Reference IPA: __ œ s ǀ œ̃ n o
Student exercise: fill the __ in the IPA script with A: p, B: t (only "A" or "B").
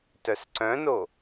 B